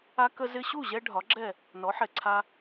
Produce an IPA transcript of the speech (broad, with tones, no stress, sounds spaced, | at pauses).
a˧ k ə˧ z ɪ˧ ɕ u˥˩ ʑ ɛ˥ ɖʱ ɒ˩˥ ɡ͡ǁ ɛ˥˩ | n ɔ˩˥ ħ ɛ˩ ǀʰ a˧